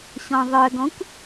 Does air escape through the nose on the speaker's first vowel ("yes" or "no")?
yes